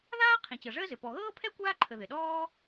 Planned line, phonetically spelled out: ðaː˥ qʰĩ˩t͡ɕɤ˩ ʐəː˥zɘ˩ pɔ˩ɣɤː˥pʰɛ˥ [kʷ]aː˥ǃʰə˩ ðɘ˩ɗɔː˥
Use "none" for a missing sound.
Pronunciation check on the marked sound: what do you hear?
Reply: kʷ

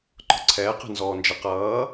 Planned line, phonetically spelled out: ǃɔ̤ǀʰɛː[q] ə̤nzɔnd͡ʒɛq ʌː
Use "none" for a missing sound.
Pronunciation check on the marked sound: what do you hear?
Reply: q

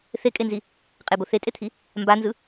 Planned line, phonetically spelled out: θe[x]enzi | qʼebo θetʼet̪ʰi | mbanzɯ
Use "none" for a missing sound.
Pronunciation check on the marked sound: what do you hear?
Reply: kʼ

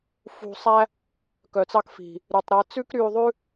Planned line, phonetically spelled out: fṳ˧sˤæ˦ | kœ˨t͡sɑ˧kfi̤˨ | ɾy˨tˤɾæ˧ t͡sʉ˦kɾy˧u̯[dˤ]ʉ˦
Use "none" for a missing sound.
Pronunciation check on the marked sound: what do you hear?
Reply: ðˤ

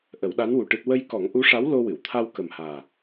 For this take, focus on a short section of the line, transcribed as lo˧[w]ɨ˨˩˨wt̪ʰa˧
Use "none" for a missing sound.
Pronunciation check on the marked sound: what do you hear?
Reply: w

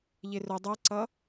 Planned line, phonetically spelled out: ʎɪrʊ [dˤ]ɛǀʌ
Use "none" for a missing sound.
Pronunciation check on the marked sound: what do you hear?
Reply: dˤ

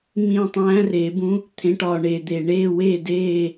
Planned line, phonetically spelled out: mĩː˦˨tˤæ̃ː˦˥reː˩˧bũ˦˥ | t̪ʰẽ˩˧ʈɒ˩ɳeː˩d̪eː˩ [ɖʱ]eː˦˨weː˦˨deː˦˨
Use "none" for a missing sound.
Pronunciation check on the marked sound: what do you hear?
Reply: ɳ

